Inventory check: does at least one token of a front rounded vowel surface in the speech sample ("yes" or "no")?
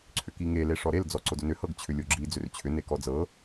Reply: yes